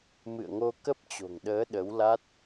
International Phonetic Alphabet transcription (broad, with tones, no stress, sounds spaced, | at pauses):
m ɨ̰˧˨ ə̯ ŋ o˧ k ə˦˥ p̚ t͡ɕ o̤˨˩ ŋ ɗ əː˨˦ ɗ ə˨˦ w l a˦˥ t̚